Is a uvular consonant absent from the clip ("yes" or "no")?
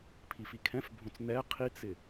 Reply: no